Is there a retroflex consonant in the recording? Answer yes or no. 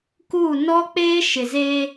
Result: no